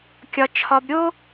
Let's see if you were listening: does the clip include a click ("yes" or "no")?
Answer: no